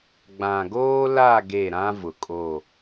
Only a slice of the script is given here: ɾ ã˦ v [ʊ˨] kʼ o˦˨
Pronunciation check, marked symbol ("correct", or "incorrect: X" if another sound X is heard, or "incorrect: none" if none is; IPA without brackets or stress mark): correct